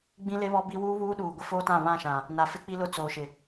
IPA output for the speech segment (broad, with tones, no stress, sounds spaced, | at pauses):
ɡ͡b ĩ˦ l e˦ β ɔ˦ b i˦ w uː˦ β uː˦ ɗ uː˨ ɡʷ ɪ˦ f oː˦ t ã˦˨ β ã˦˨ ʃ ã˨ | n a˨ f ɪ˦ k͡p i˦ l ʊ˦ t͡s oː˨ ʃ ɪ˨